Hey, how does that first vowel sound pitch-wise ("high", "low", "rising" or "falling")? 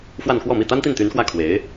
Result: falling